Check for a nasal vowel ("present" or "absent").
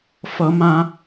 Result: present